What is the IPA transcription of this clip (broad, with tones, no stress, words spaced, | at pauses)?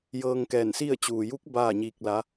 jɤː˧ŋkɛː˧˩nsi˥˨ə̯ t͡ɕuː˩ju˧˥k̚ baː˥˨ɲiː˧k̚la˧˥